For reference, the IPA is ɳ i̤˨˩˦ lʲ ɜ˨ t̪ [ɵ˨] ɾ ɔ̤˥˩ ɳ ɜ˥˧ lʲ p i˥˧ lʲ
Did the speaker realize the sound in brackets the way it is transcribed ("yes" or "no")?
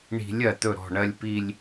no